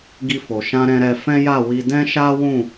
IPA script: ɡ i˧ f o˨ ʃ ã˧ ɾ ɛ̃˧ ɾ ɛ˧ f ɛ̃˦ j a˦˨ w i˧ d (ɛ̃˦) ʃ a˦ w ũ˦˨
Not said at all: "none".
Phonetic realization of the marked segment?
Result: ɛ̃˦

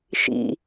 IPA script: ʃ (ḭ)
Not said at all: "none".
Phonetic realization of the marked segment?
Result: ḭ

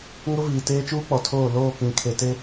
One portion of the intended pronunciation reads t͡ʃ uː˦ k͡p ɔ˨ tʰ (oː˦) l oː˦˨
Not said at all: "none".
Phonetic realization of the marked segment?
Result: oː˦˨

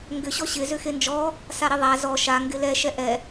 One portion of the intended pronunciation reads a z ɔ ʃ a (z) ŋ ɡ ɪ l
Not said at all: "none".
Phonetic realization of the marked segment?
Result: none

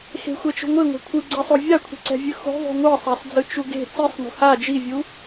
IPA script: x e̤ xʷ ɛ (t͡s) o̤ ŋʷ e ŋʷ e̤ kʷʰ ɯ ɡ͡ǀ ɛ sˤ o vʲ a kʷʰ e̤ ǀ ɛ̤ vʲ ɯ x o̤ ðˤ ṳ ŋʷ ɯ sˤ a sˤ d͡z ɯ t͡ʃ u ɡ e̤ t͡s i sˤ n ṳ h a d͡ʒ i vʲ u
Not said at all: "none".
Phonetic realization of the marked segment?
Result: t͡ʃ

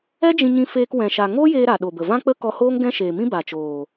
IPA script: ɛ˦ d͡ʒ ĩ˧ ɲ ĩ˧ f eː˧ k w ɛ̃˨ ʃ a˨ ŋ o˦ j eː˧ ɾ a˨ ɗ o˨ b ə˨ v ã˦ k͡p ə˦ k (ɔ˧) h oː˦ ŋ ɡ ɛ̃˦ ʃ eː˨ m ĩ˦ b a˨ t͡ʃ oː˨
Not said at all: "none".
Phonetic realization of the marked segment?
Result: ɔ˧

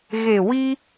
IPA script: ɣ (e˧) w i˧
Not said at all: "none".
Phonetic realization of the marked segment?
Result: e˨˩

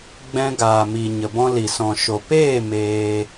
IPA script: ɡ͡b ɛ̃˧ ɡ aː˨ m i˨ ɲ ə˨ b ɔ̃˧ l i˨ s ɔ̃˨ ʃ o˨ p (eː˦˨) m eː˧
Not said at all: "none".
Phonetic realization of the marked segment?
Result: eː˦˨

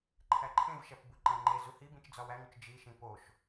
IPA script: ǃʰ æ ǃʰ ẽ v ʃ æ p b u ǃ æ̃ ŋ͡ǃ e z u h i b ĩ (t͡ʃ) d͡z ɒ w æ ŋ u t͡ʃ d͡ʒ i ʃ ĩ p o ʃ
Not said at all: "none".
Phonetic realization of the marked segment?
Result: t͡ʃ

